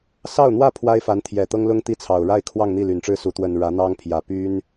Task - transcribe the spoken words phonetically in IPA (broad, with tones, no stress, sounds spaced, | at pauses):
s ɑ˥˧ ʊ̯ n̪ w ä˥˩ pʰ w a˥ ɪ̯ f a˧˥ n t̪ʰ j ɛ˨˩ t̪ ɤ˥ ŋ l ʊ˥ ŋ t̪ i˥ t͡sʰ ɑ˨˩ ʊ̯ ɻ a˥˧ ɪ̯ kʰ w ɑ˥˧ ŋ n̪ i˥˩ l y˨˩ n ʈ͡ʂ ɻ̩˥˩ s u˧˥ t̪ w ə˨˩ n ɻ ä˧˥ n̪ ɑ˥ ŋ pʰ j ä˨˩ p y˥ n